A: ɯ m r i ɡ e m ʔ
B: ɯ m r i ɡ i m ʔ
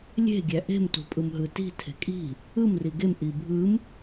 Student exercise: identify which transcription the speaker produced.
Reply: A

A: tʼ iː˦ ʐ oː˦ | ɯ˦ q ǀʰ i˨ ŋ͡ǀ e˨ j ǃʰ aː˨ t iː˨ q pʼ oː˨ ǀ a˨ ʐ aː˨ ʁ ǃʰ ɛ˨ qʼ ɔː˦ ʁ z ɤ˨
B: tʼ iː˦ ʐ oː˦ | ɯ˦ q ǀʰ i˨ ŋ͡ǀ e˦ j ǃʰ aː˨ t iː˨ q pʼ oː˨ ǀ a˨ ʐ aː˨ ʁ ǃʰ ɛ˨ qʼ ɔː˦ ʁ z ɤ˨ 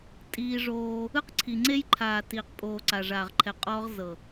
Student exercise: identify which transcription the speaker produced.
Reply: B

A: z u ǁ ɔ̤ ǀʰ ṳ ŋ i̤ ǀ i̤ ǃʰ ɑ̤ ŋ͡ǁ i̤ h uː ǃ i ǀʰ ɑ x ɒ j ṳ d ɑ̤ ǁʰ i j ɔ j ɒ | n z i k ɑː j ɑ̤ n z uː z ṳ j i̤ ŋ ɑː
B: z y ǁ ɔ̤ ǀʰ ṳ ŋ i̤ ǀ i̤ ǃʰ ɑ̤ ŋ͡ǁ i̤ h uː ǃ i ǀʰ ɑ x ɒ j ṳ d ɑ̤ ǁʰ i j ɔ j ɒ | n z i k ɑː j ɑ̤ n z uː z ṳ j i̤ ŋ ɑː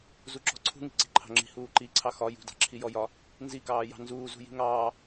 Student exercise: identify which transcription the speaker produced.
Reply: A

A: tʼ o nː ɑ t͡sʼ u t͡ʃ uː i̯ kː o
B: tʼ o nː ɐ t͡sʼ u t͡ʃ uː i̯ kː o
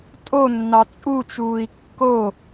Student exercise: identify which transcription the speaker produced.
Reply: A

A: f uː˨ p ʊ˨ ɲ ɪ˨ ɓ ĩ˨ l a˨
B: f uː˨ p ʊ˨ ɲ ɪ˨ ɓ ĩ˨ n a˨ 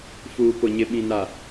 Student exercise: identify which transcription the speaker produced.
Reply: B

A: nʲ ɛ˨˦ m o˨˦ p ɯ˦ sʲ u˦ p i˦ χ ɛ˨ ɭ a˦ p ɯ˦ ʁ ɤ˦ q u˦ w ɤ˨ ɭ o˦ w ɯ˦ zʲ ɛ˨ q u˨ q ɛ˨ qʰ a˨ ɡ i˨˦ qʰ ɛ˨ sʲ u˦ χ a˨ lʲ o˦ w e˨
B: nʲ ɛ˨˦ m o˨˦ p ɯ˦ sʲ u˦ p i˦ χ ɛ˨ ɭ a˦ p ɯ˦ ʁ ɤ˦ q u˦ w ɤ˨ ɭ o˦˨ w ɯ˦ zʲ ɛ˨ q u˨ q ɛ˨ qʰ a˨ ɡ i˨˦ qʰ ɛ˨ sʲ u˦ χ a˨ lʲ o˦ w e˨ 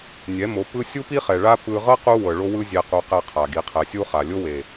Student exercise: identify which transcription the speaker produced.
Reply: A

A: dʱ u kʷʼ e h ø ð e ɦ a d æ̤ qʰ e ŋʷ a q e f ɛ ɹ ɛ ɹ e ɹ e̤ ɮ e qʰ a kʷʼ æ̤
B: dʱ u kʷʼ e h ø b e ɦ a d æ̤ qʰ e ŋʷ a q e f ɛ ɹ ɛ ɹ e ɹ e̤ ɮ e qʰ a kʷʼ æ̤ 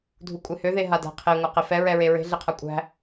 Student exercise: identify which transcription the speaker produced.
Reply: A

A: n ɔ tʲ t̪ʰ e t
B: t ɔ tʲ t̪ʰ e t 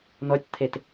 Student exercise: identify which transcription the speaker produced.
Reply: A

